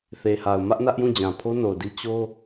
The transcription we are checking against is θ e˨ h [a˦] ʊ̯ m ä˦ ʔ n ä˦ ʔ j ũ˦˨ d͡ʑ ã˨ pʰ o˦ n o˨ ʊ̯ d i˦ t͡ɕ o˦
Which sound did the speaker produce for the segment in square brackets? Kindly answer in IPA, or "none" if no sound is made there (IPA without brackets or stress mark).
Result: a˨